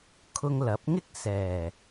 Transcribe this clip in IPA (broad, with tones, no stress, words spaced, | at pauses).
kʰʊ˧ŋlɐ˨˥p̚ ŋɪ˥k̚sɛː˨˩